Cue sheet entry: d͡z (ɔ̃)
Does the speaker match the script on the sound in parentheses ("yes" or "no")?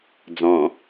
yes